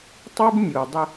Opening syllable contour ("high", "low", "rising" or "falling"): high